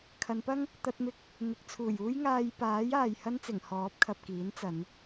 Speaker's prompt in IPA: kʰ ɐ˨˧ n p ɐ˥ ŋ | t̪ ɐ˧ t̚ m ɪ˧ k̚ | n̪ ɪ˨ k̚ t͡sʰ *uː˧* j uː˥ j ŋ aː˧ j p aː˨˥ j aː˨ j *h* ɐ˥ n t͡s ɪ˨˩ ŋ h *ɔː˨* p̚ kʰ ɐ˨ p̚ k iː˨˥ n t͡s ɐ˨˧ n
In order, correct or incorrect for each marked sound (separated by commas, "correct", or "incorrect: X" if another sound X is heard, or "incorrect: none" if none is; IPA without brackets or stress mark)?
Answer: incorrect: uː˨˩, correct, incorrect: ɔː˨˥